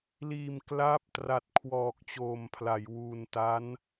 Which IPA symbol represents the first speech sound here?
l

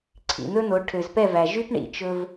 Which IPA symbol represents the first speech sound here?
ǀʰ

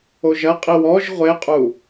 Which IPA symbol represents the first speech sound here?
o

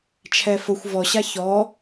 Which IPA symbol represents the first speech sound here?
t͡ʃʰ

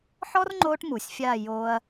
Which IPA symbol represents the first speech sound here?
ħ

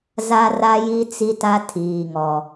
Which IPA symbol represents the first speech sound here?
z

